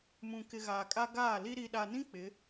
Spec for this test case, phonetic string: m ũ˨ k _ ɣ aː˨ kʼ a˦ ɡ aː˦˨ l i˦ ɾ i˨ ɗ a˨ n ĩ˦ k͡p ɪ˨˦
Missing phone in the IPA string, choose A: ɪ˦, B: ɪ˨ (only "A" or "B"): B